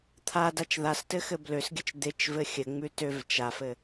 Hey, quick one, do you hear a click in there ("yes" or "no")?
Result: no